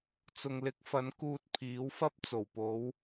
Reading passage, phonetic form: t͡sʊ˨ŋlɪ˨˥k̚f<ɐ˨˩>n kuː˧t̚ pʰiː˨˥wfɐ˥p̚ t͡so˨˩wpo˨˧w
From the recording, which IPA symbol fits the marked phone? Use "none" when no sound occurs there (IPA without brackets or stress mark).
ɐ˨˥